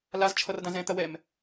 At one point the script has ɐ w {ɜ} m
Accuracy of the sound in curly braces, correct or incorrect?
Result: incorrect